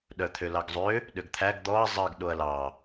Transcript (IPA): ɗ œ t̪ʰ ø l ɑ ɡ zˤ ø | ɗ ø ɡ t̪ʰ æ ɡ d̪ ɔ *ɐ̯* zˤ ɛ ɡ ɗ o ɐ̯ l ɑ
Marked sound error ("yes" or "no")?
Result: no